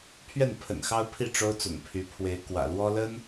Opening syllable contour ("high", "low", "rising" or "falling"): falling